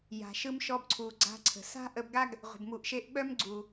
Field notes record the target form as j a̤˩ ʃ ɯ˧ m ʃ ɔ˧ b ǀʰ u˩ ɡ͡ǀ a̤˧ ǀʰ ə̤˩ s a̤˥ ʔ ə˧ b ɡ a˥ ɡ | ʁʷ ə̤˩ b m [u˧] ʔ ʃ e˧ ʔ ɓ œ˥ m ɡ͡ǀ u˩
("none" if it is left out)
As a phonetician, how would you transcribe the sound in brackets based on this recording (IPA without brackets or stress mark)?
u˩